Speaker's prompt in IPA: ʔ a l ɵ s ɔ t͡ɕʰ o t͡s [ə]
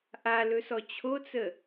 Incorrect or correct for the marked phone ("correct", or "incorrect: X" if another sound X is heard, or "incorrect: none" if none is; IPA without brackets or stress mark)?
correct